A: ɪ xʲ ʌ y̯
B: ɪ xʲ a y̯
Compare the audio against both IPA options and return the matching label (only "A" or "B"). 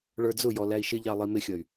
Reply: A